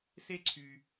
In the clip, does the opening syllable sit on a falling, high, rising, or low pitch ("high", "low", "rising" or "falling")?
high